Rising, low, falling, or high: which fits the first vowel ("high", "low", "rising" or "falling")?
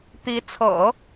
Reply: rising